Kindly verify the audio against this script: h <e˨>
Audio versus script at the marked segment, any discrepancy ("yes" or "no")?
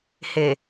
no